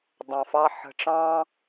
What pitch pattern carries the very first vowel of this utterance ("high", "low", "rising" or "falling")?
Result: low